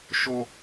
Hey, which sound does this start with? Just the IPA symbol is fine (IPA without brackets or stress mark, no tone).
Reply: ʃ